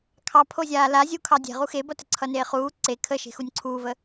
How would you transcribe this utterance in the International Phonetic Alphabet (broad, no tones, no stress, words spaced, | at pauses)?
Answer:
kʰɑ pʰozʲaːla zʲukʰɑ dʲe̤ʁu xebʌtə ǀʰʌneːχuː ǀe kʰəʃe̤xunʲ ǀʰuːvə